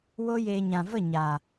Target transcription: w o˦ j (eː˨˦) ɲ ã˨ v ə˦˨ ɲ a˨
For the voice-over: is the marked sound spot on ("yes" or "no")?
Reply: no